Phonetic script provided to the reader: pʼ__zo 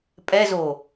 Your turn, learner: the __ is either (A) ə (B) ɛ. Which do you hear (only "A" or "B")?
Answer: B